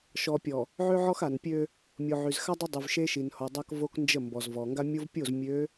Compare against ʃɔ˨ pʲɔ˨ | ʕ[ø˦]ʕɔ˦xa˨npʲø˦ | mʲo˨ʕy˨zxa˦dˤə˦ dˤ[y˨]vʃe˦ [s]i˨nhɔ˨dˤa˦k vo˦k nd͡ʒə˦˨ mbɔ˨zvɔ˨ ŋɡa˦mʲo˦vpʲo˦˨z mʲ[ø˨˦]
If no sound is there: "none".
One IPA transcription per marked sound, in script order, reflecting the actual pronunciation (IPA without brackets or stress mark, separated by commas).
ø˦, y˨, ʃ, ø˨˦